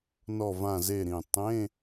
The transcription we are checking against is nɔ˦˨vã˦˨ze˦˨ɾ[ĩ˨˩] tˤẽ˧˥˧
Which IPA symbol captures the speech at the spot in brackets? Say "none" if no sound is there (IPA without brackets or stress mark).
ĩ˨˩